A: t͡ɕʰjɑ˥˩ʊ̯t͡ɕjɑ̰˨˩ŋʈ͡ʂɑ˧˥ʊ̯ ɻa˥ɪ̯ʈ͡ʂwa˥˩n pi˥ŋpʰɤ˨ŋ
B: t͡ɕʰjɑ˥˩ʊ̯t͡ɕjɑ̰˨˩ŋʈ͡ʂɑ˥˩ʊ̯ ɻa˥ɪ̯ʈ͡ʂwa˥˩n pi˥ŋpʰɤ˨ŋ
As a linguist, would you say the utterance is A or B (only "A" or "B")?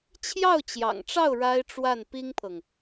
B